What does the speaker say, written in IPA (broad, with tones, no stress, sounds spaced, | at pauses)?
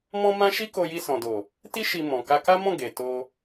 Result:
m ɔ̃˦ m ã˦ ʃ i˦ k o˧ j i˧ s ɔ̃˨ d o˨ | t i˦ ʃ i˧ m ɔ̃˨ k a˧ k a˦ m ɔ̃˦˨ ɡ e˨ t o˧